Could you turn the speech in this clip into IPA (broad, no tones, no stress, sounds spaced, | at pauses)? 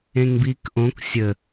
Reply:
ẽ ŋ b iː k ʔ õ k sʲ ə